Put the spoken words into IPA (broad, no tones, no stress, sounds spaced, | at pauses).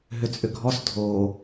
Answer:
ɦ ʏ t͡sʼ ʏ ɡʱ ɔ s dʱ o